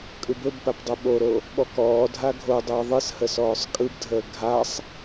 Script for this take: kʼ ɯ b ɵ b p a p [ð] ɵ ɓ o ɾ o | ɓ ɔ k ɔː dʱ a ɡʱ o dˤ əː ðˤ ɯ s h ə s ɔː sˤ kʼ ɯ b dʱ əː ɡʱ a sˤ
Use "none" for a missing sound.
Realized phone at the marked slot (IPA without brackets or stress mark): dˤ